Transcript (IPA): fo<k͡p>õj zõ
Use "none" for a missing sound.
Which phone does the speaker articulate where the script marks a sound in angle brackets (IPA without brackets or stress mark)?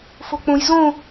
k͡p